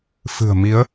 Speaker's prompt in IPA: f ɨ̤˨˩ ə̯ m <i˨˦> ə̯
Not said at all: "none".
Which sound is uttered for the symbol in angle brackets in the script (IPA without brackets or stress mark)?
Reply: i˨˦